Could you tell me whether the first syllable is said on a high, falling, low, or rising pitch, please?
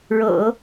low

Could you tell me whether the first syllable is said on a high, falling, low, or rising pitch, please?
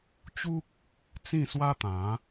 high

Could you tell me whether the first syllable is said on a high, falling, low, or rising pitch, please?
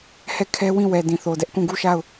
falling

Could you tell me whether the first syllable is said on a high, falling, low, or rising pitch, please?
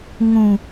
low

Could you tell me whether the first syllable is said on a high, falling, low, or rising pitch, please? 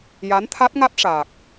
rising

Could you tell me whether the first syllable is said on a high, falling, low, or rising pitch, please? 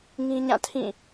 high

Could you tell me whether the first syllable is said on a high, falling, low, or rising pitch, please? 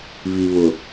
low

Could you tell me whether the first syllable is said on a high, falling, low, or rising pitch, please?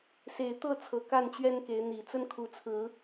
low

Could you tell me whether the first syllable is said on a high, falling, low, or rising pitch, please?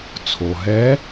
low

